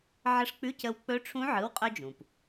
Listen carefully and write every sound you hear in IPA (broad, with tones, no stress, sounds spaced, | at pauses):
ʕ ə˧˥ ʂ k͡p ʉ˧˥˧ c ə˧ w k͡p ɵ˧˥ ʈ͡ʂʰ ũ˧˥ ʕ ɯ˩˧˩ w qʼ œ˧ d͡ʒ ũ˩ p